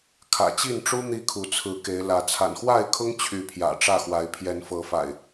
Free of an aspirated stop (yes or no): no